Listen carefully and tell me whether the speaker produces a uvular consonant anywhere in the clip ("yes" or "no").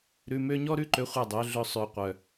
yes